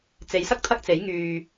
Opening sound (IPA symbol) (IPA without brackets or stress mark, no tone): t͡s